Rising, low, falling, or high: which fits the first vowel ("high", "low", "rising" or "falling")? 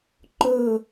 falling